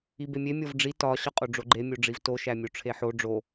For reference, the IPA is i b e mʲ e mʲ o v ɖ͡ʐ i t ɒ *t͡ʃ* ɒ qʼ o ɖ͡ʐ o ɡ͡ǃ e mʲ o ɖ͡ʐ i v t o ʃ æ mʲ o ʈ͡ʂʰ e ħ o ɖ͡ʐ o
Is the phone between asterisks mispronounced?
yes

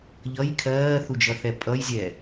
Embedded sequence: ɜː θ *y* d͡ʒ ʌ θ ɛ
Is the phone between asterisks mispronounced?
yes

